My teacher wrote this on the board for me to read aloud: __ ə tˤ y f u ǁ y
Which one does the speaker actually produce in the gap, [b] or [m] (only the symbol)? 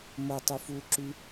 m